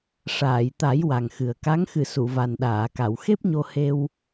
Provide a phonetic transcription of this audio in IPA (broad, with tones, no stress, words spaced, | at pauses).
ʂaː˨˩˨jt̪a˨˩˦j wa˨˩ŋxɨ˨˩ə̯ka˧˥ŋ xɨ˨˩˨ su˨˩˨va˨˩nɗaː˨˩˨ka˨˩˨w xe˦˥p̚ɲo˧he˧w